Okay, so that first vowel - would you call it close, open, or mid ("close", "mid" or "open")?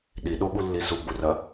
close